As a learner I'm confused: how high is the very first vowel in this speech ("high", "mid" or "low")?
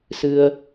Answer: high